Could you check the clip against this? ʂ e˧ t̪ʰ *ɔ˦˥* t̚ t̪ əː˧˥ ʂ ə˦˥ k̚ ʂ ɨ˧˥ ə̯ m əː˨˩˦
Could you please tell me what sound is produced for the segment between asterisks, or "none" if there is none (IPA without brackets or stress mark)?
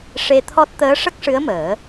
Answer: ɔ˦˥